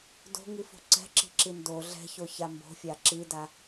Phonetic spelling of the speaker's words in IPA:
d o̤ ŋ i f o̤ ǀ ɛ̤ ǁ i̤ ǁ i n d o ɮ ɛ̤ ç o ç a m b o̤ fʲ a ǁ i d a

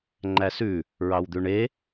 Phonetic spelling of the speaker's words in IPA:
ŋ͡ǃ æ s ʉ | ɹ ɑ w d̪ ʉ ɳ e

